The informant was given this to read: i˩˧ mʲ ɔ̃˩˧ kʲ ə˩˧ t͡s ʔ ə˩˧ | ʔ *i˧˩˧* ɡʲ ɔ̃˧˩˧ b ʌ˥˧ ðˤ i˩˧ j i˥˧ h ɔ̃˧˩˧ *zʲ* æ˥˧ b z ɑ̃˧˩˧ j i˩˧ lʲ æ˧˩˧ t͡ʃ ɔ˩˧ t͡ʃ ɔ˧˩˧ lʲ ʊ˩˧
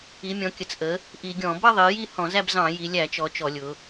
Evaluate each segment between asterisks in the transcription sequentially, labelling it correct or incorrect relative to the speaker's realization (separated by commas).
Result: correct, incorrect